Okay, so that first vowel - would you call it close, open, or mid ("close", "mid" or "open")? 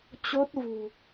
mid